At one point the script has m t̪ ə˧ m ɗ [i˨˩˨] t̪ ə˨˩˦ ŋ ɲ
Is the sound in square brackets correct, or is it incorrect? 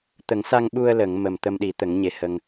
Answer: incorrect